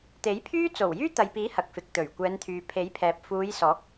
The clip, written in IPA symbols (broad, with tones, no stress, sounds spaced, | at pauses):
t̪ e˨˥ j pʰ yː˥ t͡s o˨˩ w j yː˥ t̪ ɐ˨ j p iː˨˥ h ɐ˨ k̚ f ɪ˨ k̚ t̪ ɵ˨˩ ɥ kʷ ɛː˨˧ n t̪ʰ yː˨ pʰ e˨˥ j pʰ ɛː˨ p̚ f uː˨˧ j s ɔː˨˥ k̚